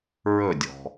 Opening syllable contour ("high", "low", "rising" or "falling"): falling